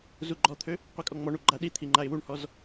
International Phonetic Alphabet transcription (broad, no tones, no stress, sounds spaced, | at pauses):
z u ɡ͡ǃ ɔ t̪ʰ ø | qʷ i kʼ ɔ ŋ͡m ɔ ɳ u ɡ͡ǃ a ɗ i t̪ʰ i ŋ͡ǃ a ɪ̯ w u ɳ h ɔ z